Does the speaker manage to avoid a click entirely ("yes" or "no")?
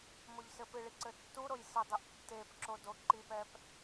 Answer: no